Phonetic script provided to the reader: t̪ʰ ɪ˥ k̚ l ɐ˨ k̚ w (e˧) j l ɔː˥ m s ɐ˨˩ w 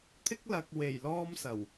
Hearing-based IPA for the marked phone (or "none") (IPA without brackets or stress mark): e˨˩